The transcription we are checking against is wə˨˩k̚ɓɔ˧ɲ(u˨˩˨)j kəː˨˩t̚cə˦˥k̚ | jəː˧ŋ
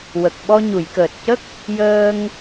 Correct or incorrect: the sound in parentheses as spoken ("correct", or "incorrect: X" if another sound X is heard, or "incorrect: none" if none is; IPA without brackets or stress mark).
correct